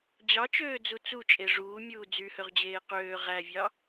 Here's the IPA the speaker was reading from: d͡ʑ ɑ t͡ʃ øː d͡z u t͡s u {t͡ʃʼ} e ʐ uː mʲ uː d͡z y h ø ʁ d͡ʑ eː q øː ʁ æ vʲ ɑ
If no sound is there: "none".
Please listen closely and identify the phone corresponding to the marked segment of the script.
t͡ʃʼ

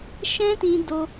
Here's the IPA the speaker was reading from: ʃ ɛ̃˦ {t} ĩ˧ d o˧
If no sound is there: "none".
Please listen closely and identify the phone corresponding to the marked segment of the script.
t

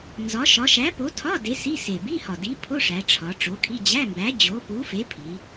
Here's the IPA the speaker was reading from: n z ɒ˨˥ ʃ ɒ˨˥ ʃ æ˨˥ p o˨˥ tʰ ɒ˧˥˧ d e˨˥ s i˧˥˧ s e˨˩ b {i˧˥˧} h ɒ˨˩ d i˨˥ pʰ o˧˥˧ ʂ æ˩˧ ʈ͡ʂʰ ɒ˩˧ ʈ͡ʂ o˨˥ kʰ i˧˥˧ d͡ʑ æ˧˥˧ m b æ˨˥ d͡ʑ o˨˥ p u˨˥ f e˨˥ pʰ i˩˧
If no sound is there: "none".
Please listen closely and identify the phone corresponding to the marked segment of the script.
i˧˥˧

